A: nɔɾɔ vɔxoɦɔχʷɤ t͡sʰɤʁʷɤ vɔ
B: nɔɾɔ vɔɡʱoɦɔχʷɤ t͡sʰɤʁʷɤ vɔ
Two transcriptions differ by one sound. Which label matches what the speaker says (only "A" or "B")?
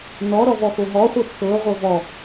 A